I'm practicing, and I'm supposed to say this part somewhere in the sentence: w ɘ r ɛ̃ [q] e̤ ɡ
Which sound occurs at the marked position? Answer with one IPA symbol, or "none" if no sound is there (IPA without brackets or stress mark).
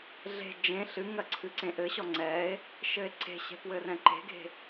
ǃ